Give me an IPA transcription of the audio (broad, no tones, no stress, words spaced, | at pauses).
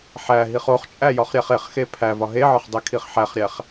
ħæ ɦiχoχt͡ʃʼæ jɒχɾʲæχeχxe pʰæ vɒɦeʕɒχ dˤekʰiχħæχɾʲæχ